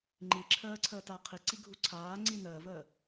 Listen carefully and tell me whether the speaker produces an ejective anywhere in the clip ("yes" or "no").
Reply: no